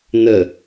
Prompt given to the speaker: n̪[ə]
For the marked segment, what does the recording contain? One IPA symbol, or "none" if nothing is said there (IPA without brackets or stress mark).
ə